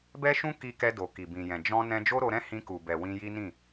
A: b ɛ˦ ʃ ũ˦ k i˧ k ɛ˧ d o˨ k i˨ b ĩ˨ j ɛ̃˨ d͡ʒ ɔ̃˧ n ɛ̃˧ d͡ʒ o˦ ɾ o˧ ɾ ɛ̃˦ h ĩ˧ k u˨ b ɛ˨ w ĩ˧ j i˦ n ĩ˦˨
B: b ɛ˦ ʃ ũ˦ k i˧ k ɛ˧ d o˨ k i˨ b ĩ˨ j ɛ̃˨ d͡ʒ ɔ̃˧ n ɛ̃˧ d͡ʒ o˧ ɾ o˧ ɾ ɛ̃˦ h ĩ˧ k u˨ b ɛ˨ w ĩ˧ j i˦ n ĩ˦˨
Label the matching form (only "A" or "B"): A